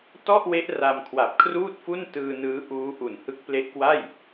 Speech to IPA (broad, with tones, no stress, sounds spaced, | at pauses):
t ɔ˥˩ ʔ w e˦˥ ʔ r a˧ m kʰ w a˨˩ p̚ kʰ r uː˥˩ t̚ f u˥˩ n t ɯː˧ n ɯː˦˥ ʔ uː˦˥ ʔ u˨˩ n h ɯ˦˥ k̚ p l e˦˥ ʔ k w a˥˩ j